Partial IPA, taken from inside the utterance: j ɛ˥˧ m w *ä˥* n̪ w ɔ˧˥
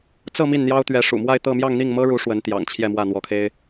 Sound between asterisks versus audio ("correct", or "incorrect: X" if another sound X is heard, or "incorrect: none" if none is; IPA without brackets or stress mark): incorrect: ä˥˩